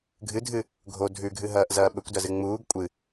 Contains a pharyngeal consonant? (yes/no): no